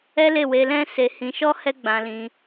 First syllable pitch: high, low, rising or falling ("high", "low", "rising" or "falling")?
high